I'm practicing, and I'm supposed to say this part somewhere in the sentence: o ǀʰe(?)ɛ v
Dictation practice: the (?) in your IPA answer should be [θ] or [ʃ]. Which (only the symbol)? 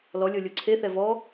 θ